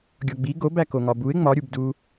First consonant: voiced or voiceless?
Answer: voiced